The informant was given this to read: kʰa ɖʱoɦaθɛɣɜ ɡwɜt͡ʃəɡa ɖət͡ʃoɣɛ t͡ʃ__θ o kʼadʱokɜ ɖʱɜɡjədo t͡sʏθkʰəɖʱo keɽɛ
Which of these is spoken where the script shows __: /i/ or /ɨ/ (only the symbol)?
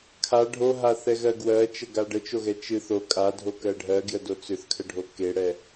ɨ